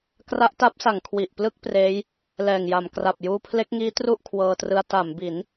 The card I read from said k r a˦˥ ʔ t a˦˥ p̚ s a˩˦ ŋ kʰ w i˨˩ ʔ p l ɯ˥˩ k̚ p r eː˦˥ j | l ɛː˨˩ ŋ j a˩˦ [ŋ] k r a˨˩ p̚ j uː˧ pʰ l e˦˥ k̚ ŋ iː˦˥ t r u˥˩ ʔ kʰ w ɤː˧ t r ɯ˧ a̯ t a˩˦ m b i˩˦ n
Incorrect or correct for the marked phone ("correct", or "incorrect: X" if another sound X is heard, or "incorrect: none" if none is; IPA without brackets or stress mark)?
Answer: incorrect: m